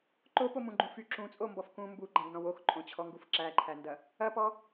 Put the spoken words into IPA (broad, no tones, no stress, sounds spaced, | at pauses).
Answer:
ǃ o p o m ũ ɡ͡ǃ ũ f y ǁ ũ t͡sʼ o m b ɔ f k ũ m b u ɡ͡ǃ æ̃ ɡ n ɔ̃ w o x ǃʼ õ t͡ɕʰ ɔ ŋ ɡ u f ǁ æ ǃʰ æ n d ɐ | ɐ p ɔ